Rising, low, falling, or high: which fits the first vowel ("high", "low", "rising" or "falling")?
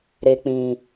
low